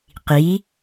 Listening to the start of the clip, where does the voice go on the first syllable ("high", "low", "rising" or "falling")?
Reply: rising